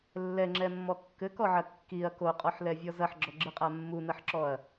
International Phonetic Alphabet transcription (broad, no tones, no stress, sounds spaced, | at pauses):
lː ɛ ŋ͡ǁ ɛ mː ɔ kː ɘ k ɔ ʕ ɐ kː i ɐ̯ k o qʼ ɔ ħ l ɛ vʲ ɔ z ɐ ħ ɡ͡ǁ ɔ ɡ͡ǁ ɨ qʼ a mː u n ɐ ħ ǁ ɔ ɐ̯